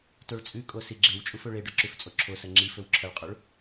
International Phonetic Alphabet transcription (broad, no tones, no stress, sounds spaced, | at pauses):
t o ɭ t͡sʼ ʉ kʼ o s i ɡ͡ǁ e w t͡ʃʼ u f ɵ ɭ e ɖ ɵ ǁ ʉ f t͡sʼ o ǁʰ o s ɐ ŋ͡ǁ i f ɵ w ǁʰ ɐ ɭ qʼ o ɭ